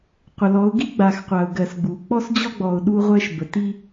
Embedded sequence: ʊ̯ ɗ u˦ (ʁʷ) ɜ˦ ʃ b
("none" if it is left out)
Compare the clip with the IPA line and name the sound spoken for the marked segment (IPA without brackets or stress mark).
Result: ʁʷ